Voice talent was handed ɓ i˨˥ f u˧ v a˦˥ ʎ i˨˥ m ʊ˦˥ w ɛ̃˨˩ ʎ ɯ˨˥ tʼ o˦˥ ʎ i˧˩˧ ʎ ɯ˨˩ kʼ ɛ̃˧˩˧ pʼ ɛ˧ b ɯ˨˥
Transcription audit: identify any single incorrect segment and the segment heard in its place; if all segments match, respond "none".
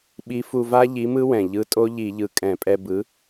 ʊ˦˥ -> ɯ˦˥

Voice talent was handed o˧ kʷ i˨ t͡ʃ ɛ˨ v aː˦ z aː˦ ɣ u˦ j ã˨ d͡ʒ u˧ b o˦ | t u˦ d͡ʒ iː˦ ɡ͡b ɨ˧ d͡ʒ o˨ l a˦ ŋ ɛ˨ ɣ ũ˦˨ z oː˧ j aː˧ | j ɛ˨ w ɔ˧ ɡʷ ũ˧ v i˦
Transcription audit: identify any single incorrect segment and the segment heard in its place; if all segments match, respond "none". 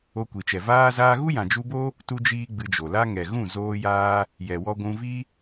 none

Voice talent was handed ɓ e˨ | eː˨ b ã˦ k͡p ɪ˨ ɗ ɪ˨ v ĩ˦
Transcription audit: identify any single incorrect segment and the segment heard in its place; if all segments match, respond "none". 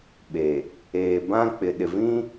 none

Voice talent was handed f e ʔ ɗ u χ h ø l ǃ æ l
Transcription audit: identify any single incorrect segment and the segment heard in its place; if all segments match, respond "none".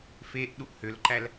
χ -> ʔ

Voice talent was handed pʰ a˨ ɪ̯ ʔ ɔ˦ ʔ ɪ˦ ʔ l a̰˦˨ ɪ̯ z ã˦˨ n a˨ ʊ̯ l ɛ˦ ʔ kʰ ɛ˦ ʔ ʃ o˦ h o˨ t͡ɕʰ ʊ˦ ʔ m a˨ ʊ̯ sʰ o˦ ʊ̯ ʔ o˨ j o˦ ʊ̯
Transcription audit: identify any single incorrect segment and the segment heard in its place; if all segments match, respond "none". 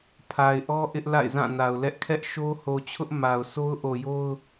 none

